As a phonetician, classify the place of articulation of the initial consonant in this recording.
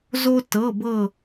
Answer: alveolar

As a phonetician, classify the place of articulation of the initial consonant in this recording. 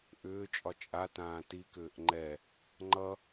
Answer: glottal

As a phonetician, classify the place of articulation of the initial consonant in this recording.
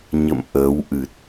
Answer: palatal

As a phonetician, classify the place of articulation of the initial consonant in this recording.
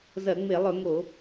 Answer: alveolar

